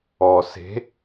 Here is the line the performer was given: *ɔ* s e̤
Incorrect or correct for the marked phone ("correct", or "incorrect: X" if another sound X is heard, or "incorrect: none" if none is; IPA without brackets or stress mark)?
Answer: correct